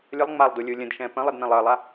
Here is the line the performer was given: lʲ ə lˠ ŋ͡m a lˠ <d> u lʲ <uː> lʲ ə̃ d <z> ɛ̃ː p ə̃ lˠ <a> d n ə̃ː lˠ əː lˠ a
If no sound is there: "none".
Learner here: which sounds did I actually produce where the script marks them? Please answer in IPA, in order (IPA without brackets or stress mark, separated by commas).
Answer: d, uː, ʃ, ə